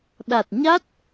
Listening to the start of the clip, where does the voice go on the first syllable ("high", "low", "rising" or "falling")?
low